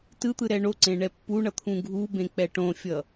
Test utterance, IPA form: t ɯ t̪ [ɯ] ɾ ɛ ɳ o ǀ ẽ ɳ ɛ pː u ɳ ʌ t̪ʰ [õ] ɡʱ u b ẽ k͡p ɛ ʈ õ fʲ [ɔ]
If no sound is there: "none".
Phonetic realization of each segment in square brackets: ɯ, ũ, ʌ

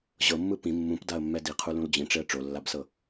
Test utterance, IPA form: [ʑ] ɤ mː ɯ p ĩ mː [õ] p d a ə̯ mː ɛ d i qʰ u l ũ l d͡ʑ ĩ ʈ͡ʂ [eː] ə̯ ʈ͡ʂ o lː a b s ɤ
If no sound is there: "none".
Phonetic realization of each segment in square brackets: ʑ, ũ, e

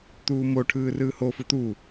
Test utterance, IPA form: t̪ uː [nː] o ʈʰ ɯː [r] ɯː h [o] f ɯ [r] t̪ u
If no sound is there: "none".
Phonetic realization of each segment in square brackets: m, r, o, none

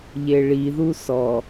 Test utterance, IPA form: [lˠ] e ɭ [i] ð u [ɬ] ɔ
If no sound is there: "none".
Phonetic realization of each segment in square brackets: ʎ, i, s

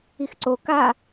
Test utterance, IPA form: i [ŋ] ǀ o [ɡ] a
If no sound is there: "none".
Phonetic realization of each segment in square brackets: x, k

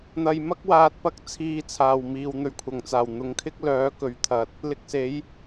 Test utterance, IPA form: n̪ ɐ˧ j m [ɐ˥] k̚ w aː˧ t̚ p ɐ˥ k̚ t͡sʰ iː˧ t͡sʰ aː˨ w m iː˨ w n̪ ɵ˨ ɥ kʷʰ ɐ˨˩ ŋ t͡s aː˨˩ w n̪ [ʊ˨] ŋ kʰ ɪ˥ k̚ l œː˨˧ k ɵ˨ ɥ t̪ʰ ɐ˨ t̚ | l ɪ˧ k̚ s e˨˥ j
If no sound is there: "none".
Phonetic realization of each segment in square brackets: ɐ˥, ʊ˨˧

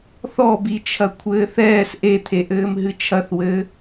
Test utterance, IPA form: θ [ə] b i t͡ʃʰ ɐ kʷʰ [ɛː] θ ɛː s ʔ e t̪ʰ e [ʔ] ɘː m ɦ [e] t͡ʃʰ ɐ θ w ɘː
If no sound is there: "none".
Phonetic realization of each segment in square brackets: ɔ, ɘː, ʔ, ɨ

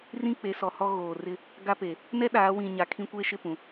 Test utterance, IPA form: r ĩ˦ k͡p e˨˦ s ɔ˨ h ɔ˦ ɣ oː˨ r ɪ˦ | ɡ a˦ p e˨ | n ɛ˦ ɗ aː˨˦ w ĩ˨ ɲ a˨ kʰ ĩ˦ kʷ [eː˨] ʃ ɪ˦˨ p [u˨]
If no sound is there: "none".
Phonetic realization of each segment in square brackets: eː˦, ũ˨

